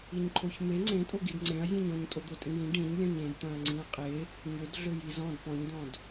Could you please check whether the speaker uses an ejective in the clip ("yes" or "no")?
yes